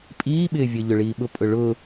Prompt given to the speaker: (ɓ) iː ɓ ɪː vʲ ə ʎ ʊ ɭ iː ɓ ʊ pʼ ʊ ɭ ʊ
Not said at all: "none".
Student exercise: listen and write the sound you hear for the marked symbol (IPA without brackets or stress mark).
pʼ